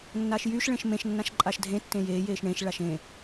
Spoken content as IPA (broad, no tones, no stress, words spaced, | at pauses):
nːaːʃjyʃ ɭẽʃmẽʃ nːãʃǃʼaʃdʱẽ tːẽjeː jeːʃɳẽʃ ɭaʃẽ